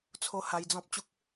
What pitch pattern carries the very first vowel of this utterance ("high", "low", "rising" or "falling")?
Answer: high